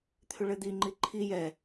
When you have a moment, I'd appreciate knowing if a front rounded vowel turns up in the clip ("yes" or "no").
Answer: yes